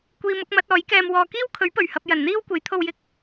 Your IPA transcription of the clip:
kʷ iː˧ m ʊ˨˥ k̚ m ɐ˨˥ t̚ ɔː˨˥ j k ɛː˧ m w ɔː˧ k iː˥ w kʰ ɵ˨˥ ɥ p ɵ˨˩ ɥ h ɐ˧ p̚ j ɐ˨˩ n n̪ iː˥ w kʷ e˨˥ j t̪ʰ o˧ w j ɪ˧ k̚

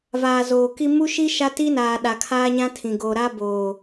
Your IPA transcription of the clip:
v aː˨ z oː˨ k i˦ m u˦ ʃ i˦ ʃ a˦ t i˦ n aː˨ ɗ a˨ kʰ aː˦ ɲ ã˦ tʰ ĩ˨ ɡ o˨ ɾ a˦ b oː˨

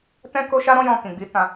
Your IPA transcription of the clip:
t ɛ̃˦ k o˦ ʃ a˦ ɾ ɔ̃˦ j ɔ̃˧ k ĩ˨ ɡ͡b i˨˦ t ã˧

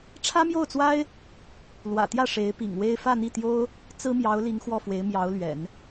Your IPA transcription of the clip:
ʈ͡ʂʰ ä˥ m j o˥˩ ʊ̯ t͡s w a˥ ɪ̯ | l w ä̰˨˩ t̪ j ä˥˩ ʂ e˧˥ ɪ̯ p ḭ˨˩ ŋ w e˥ ɪ̯ f ä˥˧ n̪ i˥˩ t̪ j o˥ ʊ̯ | t͡s ɹ̩˥ m j ɑ˧˥ ʊ̯ l i˧˥ ŋ x w ɔ˥˩ f w e˧˥ ɪ̯ m j ɑ˧˥ ʊ̯ l ɥ ɛ̰˨˩˦ n

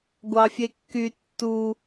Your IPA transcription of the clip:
ɡʷ ɑ fʲ e kː y tː u

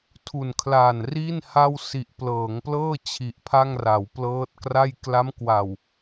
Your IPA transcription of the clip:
tʰ u˨˩ n kʰ l a˨˩ n r i˥˩ n h a˥˩ w s i˨˩ ʔ p l ɤː˩˦ ŋ p l ɤː˥˩ t͡ɕʰ i˨˩ ʔ pʰ a˥˩ ŋ r a˩˦ w p l ɤː˦˥ t̚ k r a˥˩ j k l a˦˥ m k w a˨˩ w

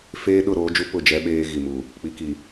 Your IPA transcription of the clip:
f eː˦ ɗ ʊ˦˨ ɾ oː˦ d͡ʒ u˦ p ʊ˦˨ d͡ʒ ɛ˦ ɓ eː˦ ɣ i˨ m u˨ | k͡p i˨ k i˨

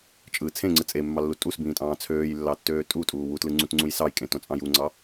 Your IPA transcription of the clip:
t͡ʃʼ ɯ t͡sʰ ẽ ŋ͡ǀ ɯ t͡sʼ e mː ɑ lː u tʼ u s b ĩː tʼ ɑ̃ː t͡sʰ øː j lː ɑ tː øː tʼ u tʼ uː w u t l ɯ ŋ͡ǀ ũ t ŋ͡ǀ ũ j s ɑ j kʼ ẽ t õ t͡sʼ ɑ̃ j u ŋ͡ǀ ɑ

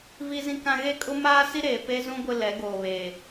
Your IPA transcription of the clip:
v i˦ z ĩ˦ k ã˦ ɣ e˦ kʼ ʊ˦ m aː˦ s i˦ ɾ eː˨ p e˦ z ũ˦ ɡʷ ɪ˦ l ɛ˨˦ ɡ oː˨ β eː˨

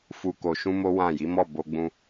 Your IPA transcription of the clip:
f u˧ k o˧ ʃ ũ˦ m o˦ w ã˦˨ j i˨˦ m ɔ˦˨ b o˧ ɡ͡b ũ˧

